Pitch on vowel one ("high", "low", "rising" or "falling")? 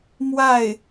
falling